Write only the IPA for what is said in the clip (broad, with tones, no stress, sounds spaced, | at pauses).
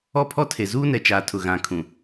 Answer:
ɔ˦ pʰ ɔ˦ tʰ e˨ z uː˦ n ɛ˨ t͡ʃ aː˨ tʰ ʊ˨ ɣ ã˨ kʰ ũ˨